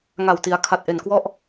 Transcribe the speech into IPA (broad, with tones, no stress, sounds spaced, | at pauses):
ŋ a˨˩ w t i˩˦ a̯ kʰ a˨˩ t̚ ʔ e˨˩ n k w ɔ˥˩ ʔ